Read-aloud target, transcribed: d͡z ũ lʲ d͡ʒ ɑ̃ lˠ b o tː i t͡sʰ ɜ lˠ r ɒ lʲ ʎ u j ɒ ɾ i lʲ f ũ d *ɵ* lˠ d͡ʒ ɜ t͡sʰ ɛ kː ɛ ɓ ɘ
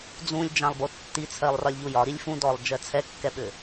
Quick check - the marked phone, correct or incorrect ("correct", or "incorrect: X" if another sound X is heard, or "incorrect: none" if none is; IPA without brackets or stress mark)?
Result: incorrect: ɔ